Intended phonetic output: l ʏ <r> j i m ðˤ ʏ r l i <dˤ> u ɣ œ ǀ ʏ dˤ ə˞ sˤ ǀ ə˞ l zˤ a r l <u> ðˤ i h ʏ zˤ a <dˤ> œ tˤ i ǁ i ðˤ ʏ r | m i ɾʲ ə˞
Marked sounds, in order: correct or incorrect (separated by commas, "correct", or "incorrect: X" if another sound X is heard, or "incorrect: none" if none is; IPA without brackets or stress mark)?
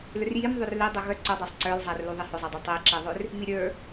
correct, correct, correct, correct